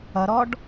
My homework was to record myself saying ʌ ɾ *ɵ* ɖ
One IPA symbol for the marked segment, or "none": ɔ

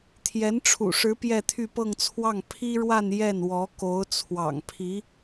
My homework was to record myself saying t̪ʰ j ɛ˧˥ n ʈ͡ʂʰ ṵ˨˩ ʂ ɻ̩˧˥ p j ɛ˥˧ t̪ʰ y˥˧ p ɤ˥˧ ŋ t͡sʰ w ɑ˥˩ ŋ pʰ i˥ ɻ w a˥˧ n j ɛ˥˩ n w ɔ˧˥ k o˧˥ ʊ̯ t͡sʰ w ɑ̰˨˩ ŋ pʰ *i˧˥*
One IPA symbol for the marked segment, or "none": i˧˥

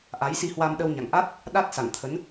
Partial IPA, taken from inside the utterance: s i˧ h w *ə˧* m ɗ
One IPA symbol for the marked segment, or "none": a˧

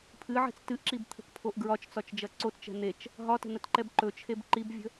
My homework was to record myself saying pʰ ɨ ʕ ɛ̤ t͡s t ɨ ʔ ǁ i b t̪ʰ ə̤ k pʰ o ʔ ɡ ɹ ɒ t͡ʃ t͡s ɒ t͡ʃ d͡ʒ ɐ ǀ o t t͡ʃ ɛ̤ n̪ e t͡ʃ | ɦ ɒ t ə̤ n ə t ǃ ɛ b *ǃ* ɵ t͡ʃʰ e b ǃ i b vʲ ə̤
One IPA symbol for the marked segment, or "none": ǃ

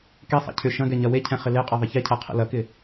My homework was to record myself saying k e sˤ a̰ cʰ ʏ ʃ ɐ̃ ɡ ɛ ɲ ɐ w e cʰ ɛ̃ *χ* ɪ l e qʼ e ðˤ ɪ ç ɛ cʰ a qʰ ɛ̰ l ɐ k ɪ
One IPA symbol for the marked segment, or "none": χ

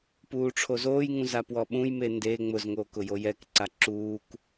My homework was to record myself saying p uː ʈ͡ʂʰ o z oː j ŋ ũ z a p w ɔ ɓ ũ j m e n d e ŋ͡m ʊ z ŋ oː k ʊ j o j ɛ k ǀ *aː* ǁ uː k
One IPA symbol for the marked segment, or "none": a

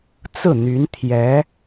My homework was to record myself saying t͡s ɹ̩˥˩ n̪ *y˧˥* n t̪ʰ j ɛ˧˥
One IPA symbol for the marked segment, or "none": y˧˥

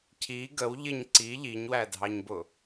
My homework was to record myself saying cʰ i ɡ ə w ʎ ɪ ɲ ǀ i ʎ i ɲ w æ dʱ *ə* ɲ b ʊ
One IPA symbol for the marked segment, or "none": ɑ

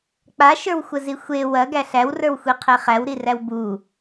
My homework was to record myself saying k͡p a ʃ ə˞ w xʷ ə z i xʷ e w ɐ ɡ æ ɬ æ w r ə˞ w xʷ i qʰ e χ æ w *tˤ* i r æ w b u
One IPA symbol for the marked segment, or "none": ɾ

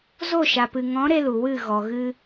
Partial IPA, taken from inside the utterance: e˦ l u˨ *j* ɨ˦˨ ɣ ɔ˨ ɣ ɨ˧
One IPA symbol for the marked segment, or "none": w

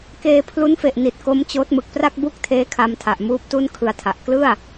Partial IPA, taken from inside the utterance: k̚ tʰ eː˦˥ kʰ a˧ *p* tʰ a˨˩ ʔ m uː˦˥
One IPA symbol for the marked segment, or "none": m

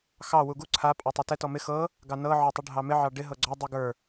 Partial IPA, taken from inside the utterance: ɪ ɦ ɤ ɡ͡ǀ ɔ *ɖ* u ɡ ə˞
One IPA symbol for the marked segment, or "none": dˤ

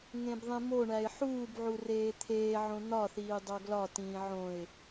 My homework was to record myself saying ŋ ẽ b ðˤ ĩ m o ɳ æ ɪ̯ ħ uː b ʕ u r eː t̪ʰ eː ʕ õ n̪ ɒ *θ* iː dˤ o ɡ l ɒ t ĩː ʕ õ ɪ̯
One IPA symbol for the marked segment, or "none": θ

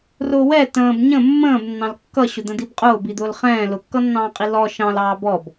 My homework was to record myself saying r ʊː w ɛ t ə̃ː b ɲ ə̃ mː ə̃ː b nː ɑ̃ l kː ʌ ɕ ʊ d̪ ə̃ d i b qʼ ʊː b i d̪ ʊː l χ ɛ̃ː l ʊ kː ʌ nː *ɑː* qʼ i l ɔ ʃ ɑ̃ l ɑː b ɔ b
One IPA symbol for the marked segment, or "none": ɑ̃ː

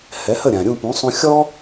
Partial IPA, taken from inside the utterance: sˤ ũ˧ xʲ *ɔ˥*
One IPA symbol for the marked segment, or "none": ɔ˥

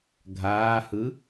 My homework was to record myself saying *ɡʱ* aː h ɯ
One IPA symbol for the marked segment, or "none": ɡʱ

